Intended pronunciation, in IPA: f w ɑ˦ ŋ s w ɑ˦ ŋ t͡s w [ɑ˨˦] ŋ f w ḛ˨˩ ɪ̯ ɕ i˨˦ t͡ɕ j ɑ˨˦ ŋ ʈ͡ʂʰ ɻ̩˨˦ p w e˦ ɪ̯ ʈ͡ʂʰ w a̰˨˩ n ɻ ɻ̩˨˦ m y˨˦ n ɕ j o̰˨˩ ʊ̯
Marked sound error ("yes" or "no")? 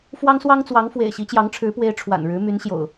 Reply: no